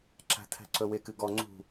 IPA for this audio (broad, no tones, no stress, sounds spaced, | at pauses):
ǁ æ̤ tʰ ɛ̤ ǀ ɵ w ɪ k ɨ ɡ ɔ ŋ͡ǀ ṳ